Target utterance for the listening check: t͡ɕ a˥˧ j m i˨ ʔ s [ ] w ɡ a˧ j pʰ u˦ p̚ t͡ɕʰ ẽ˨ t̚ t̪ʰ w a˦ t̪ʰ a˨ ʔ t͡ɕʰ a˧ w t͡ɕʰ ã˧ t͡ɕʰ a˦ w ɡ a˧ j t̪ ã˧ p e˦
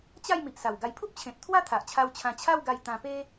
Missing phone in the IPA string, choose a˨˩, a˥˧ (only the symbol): a˨˩